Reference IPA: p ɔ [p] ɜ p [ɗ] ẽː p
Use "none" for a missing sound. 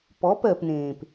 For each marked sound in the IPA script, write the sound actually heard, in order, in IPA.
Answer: p, n

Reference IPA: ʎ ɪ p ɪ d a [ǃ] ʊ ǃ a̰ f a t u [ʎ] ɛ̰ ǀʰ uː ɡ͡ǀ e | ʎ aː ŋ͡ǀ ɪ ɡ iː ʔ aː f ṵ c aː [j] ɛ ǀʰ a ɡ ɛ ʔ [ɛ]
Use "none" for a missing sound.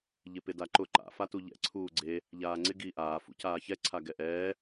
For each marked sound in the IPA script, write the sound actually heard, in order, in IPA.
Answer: ǃ, ʎ, ç, ɛː

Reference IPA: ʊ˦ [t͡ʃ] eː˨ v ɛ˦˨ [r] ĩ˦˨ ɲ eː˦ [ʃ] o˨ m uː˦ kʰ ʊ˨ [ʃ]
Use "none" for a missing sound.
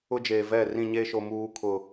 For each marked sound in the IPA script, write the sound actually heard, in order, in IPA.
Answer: d͡ʒ, r, ʃ, none

